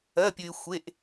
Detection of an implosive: absent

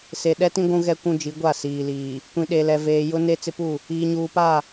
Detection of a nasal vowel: present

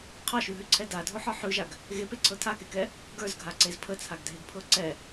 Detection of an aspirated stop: present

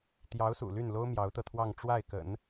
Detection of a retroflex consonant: present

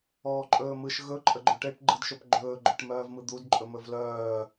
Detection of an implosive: absent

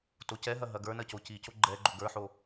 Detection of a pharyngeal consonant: present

